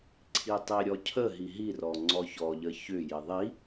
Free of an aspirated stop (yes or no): no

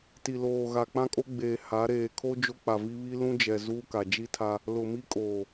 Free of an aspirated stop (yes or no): no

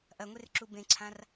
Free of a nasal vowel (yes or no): no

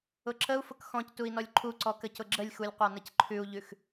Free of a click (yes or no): no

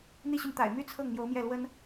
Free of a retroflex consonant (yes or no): yes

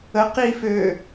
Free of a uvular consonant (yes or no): no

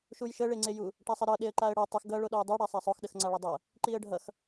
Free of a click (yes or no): no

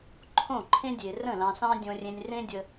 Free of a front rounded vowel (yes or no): yes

